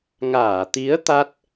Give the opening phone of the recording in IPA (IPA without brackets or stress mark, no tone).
ŋ